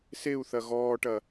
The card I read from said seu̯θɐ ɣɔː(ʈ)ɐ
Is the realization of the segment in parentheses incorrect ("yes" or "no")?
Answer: no